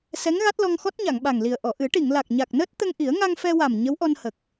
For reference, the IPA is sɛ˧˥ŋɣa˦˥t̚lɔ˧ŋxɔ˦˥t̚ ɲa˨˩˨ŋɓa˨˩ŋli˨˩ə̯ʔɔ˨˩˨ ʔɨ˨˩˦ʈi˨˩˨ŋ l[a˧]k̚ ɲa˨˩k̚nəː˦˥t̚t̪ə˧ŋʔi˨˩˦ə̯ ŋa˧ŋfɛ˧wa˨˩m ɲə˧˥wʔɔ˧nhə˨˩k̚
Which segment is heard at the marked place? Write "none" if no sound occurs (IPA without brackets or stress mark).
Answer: a˨˩